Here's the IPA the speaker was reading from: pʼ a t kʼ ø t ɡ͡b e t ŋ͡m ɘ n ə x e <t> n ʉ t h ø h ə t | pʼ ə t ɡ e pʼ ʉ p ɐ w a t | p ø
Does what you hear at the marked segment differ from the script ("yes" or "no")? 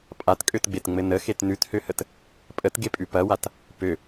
no